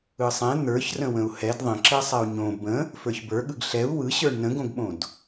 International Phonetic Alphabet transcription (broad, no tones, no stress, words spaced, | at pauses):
ɯsˤɛ̃ n̪ə˞çrə̃ wə̃u̯hɛd ðˤə̃ǁɛ sˤɛu̯ɲõ bə̃ | fə˞çbə˞ɠɯɡ ɬɛu̯ wɯɕə˞ɳ nə̃ɡõɡɓõd